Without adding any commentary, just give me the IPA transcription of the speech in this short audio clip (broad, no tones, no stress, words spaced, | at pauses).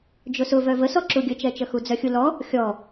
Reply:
d͡ʒʊsʊvœ vəsɔǁu ɡʲət͡ʃɛt͡ʃəxu d͡zœxʲulɔ | xʲɔ